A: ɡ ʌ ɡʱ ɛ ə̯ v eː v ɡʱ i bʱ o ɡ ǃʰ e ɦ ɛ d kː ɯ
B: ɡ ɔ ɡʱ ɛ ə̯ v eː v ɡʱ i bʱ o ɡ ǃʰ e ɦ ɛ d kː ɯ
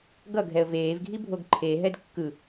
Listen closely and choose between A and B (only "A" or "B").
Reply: A